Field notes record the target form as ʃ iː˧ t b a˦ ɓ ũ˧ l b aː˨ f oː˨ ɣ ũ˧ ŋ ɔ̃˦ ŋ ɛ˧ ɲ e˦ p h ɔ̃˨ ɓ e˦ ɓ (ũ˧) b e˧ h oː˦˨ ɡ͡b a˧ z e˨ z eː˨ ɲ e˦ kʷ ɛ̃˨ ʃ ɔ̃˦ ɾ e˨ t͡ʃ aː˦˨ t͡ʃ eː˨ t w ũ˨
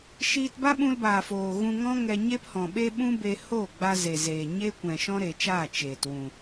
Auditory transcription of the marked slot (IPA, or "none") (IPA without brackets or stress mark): ũ˦